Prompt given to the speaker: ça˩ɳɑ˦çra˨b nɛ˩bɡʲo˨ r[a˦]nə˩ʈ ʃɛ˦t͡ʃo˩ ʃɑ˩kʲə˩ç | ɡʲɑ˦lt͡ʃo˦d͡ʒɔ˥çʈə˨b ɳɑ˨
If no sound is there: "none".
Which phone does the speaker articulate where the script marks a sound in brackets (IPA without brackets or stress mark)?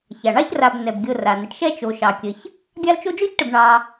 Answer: a˩